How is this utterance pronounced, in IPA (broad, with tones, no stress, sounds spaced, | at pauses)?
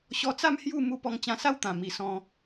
ɕ ɔ˧ t͡s a˥˧ m h j u˥˧ m u˧ p ɔ˧ ŋ t͡ɕ ã˧ s a˦ w t̪ ã˨˩ m i˨˩ s ɔ̃˧